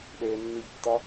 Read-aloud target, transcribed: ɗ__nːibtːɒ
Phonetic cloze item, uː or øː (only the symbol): øː